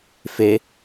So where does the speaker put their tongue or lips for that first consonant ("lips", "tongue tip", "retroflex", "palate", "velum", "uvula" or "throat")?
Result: lips